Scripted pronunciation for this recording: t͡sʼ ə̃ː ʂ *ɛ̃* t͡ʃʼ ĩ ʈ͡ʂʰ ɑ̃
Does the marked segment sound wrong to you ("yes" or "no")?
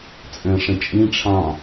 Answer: yes